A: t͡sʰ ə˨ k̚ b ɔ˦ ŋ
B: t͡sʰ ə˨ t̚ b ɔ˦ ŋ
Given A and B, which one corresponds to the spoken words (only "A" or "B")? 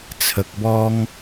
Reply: A